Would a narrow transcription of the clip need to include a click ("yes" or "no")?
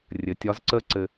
yes